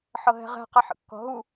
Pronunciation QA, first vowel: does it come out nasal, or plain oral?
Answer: oral